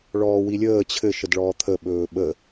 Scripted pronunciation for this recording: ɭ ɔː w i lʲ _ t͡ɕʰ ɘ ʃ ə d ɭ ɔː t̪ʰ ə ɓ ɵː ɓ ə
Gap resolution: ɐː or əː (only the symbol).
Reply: əː